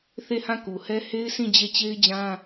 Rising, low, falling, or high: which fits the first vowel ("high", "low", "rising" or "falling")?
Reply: falling